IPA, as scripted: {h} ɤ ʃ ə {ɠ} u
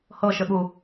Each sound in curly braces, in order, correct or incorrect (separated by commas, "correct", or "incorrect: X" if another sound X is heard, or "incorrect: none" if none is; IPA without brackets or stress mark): correct, correct